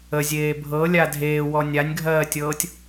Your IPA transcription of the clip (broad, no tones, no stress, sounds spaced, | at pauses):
ə zʲ eː bʱ ɤ lʲ a dʱ eː w ɔ nʲ a nʲ ɡʱ ɜː tʲ ɤː tʲ